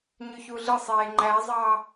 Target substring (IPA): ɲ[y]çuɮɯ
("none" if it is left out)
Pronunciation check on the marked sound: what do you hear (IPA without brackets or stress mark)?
y